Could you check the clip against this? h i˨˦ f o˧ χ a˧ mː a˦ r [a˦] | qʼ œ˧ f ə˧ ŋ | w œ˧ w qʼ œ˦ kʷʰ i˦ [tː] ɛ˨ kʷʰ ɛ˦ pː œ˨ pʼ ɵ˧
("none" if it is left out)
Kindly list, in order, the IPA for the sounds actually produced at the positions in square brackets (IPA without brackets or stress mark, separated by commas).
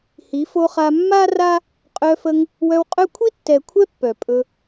a˦, tː